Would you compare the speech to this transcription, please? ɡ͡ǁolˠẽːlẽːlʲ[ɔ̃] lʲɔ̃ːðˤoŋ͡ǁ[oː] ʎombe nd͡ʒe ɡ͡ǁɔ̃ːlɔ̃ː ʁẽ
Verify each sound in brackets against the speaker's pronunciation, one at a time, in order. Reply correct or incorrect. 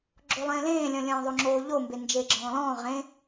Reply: correct, correct

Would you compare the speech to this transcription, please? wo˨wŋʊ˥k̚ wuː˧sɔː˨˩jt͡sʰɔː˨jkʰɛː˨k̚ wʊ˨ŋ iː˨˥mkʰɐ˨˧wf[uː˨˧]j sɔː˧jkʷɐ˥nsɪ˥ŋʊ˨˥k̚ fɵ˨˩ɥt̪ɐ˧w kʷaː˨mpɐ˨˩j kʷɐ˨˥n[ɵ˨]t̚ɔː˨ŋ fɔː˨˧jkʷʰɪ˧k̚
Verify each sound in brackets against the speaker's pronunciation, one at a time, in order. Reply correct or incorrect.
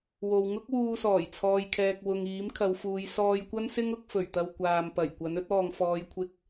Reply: correct, incorrect

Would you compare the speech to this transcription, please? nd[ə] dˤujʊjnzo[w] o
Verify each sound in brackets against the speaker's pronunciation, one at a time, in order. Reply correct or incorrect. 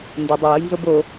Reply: incorrect, incorrect

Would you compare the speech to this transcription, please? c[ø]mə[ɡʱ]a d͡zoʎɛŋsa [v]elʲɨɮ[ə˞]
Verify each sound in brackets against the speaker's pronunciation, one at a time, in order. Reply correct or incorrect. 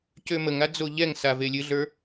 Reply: correct, incorrect, correct, correct

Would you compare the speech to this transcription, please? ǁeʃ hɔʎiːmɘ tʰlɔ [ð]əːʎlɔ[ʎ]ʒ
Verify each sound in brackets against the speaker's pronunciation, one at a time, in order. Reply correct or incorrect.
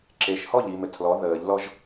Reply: correct, incorrect

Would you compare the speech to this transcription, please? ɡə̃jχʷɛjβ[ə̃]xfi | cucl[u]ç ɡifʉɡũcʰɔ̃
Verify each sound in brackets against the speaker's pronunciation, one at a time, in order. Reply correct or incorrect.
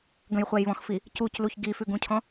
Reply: incorrect, correct

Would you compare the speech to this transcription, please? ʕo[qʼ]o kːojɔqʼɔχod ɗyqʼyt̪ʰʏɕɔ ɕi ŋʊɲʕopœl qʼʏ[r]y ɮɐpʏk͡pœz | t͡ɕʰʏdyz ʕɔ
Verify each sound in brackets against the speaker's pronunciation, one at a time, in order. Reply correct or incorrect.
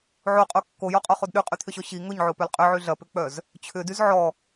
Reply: correct, incorrect

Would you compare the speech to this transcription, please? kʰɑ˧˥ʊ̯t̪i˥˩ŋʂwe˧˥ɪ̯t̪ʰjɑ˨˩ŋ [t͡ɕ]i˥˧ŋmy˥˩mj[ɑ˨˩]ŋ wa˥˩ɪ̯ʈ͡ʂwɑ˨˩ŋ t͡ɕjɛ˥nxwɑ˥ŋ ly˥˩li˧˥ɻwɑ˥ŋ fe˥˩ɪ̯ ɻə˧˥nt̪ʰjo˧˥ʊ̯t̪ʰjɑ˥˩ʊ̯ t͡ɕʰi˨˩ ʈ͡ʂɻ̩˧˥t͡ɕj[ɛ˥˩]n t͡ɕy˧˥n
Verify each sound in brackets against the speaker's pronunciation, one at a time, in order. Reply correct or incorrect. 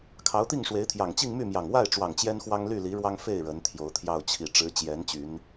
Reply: correct, correct, incorrect

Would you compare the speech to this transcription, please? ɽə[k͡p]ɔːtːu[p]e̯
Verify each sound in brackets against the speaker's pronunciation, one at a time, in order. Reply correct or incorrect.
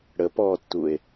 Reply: incorrect, incorrect

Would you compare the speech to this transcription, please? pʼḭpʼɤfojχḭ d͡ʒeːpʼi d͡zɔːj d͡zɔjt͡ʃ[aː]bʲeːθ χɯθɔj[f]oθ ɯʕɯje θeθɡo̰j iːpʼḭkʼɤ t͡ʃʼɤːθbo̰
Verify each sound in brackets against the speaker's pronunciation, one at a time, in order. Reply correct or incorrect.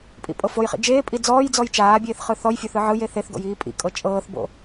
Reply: correct, incorrect

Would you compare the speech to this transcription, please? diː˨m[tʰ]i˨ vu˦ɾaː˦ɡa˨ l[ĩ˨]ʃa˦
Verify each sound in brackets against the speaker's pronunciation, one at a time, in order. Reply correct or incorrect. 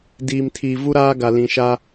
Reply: correct, correct

